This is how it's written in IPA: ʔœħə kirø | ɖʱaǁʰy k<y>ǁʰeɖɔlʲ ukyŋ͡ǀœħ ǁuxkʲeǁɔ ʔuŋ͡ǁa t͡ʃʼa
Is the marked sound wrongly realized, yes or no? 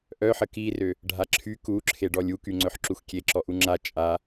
yes